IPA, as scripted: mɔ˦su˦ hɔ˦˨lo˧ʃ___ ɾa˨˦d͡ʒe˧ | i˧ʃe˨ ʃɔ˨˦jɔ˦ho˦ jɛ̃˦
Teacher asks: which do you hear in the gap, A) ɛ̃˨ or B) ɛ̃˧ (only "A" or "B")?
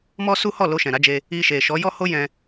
A